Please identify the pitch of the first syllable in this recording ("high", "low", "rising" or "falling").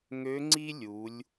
rising